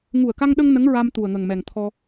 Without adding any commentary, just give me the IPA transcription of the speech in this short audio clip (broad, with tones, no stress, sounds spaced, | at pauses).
ŋ u˨˩ ə̯ k a˧ ŋ ɗ ə˧ ŋ n ə˧˥ ŋ ɹ a˧ m t̪ u˨˩ ə̯ ŋ ə˨˩ ŋ m ɛ˨˩ ŋ t̪ʰ ɔ˧